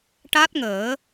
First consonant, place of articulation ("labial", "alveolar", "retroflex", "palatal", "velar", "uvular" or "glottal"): retroflex